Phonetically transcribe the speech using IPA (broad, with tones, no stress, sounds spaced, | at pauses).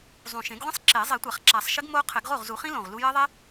zˤ ũ˨˩ ʃ ẽ˨˩˦ ɡ ʁʷ ĩ˦˥ sˤ ǁ e˨˩˦ zˤ i˨˩˦ tʷ a˨˩˦ χ ǁ a˨˩˦ sˤ ʃ ɘ˦˥ ɡ m o˦˥ qʰ ɘ˨˩˦ ɡ ʁ o˥˩ ʁ z u˨˩˦ χ ĩ˦˥ l õ˨˩ ʁ l u˦˥ j ɜ˦˥ ðˤ e˦˥